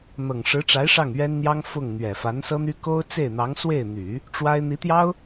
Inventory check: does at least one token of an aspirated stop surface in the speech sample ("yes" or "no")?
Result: no